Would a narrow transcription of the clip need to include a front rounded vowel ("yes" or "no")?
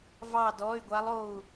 yes